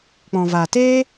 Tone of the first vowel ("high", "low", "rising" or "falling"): low